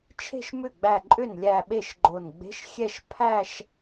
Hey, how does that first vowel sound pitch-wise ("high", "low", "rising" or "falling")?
falling